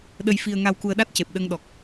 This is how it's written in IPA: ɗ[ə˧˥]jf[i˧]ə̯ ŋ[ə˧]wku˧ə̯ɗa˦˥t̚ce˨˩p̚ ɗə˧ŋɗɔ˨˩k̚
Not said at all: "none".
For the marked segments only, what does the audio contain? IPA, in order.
ə˧, i˧, a˧

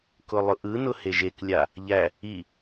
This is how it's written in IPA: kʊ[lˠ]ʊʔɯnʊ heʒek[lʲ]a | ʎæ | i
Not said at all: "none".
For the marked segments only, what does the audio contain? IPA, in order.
lˠ, lʲ

